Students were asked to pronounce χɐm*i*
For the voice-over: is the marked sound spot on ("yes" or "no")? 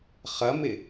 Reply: no